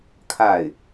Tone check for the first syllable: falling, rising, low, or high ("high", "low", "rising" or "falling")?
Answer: falling